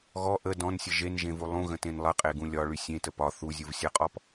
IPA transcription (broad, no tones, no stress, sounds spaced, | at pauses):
ɣ ɔ ʔ ə d ɔ̃ n sʲ ə ʒ e n ʒ ẽ v u lˠ ũ ɣ ə̃ t ẽ n lˠ ə qʼ e ɡ ũ lʲ ɒ ɭ y sʲ ẽ t ə p ɒ θ u zʲ u v sʲ ɜ qʼ ɔ p